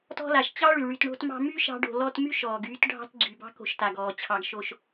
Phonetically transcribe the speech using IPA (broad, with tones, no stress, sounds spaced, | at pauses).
t ɔ̤˦ l a˩ ʃ t͡ɕ ɑ˥ ɭ y˩ ɭ y˨ t ɳ o̤˦ t m ɑ̤˦ m y˥ ʃ ɑ̤˦ ɖ o̤˨ l ɔ˦ t m y˥ ʃ ɔː˩ ɡ yː˦ t ɖʱ ɑ̤˦ t ɡ͡ǀ y˩ b ɑ̤˦ k o̤˨ ʃ t a˩ ɡ ɔː˩ t͡ɕʰ ɑ˨ ɡ ʃ o˨ ʃ